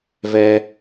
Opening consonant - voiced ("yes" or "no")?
yes